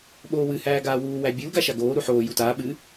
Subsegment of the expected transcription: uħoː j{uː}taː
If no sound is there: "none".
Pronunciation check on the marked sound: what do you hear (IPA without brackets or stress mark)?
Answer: u